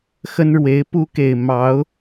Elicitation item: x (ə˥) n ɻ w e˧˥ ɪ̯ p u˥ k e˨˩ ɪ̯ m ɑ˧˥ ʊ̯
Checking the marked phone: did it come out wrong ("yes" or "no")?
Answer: no